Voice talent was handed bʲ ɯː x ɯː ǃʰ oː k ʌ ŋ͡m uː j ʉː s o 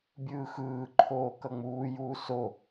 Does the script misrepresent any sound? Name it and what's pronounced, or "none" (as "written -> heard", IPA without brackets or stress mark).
ʉː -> uː